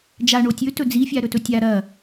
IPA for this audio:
d͡ʒ a ɳ o tʲ ɵ t ɵ d͡z i fʲ a ɾ ɵ t ɵ tʲ a ɾ ɐ

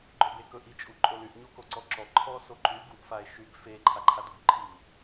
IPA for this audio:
ɡ͡ǃ ɵ b e k ɵ ʔ i t͡ʃʼ u ǃʼ o l y ʔ ɲ o k o ǀ ɔ ǁ ɔ ǃʰ ɔ s o ǃ y ɡ u ʔ f a e̯ ʃ y ɡ f e ǃʰ a ǃʰ a d u ɡ ǃʰ i

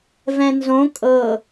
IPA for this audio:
v ɛ̃ n z õ kʼ ɤ

